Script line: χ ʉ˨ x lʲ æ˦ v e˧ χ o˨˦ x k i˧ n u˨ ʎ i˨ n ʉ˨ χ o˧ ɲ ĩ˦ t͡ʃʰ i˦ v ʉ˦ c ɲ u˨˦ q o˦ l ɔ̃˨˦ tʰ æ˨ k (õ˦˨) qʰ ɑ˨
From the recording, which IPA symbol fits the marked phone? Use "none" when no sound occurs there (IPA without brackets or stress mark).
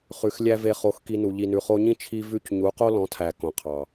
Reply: õ˨